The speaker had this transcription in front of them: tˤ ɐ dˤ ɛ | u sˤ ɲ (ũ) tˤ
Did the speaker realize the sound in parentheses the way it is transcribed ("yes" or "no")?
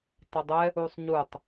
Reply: no